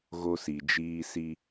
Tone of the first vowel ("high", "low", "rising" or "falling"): high